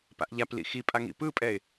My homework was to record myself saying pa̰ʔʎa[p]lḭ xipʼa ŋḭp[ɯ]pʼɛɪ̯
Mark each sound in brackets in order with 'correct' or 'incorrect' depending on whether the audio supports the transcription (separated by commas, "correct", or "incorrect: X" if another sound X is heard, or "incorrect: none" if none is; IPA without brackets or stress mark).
correct, correct